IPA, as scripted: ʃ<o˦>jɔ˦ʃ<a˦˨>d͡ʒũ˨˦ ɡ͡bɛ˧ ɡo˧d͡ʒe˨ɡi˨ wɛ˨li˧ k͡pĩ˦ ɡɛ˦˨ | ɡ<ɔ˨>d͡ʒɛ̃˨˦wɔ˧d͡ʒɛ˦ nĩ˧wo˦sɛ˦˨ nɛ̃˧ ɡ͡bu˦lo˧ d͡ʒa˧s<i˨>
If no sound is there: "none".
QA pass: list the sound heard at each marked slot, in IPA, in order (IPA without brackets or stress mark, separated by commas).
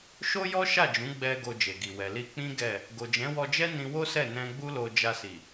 o˦, a˦˨, o˨, i˨